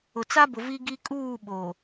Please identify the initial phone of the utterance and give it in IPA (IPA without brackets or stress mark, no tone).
ʊ